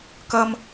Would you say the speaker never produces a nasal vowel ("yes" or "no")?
yes